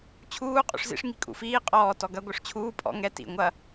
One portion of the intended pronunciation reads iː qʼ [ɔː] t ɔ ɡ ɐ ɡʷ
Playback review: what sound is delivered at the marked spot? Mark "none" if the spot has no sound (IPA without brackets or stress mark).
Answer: ɔː